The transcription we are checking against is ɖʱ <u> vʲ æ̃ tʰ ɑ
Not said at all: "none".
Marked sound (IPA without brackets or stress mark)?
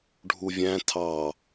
u